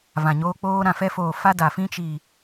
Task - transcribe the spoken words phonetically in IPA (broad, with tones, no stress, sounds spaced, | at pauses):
v ã˨ ɲ oː˧ k͡p oː˧ ɾ ã˨ f ɛ˧ f oː˨ f a˧ d a˨ f ĩ˦ t͡ʃ i˨